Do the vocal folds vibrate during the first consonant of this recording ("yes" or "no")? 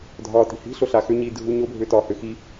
yes